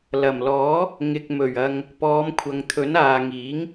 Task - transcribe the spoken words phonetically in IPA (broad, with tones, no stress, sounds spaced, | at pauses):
l ɐ˨˩ m l ɔː˨˥ | ŋ ɪ˨ k̚ m ɵ˨˩ ɥ ɐ˨ ŋ | p ɔː˨˧ m kʷʰ ɐ˨ ŋ t̪ʰ ɵ˨˥ n aː˨ ŋ iː˨˥ ŋ